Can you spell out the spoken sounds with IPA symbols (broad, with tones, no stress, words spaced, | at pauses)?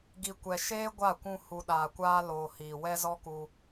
ɡi˧ kʷɛ˧ ʃeː˦ɡʷa˦˨ kʷũ˧ hu˨ ɗaː˨kʷaː˧ loː˨ hiː˨wɛ˦zɔ˦ku˧